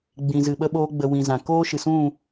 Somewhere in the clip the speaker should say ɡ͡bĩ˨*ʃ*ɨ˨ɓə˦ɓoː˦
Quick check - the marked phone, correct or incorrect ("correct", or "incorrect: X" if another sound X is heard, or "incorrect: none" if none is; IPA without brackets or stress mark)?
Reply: incorrect: z